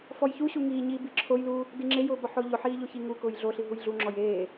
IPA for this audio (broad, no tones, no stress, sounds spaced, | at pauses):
f ɔ j ç u ɕ u ŋ iː ɲ iː b i ǁʰ o j l uː | d i ŋ͡ǁ e j ʊː b ɔ ħ ʊː ʎ ʊ ħ iː ʎ o ç i ŋ u k ʊː j ɮ o ɬ i ɦ u j ɮ u ŋ͡ǁ ɔ j eː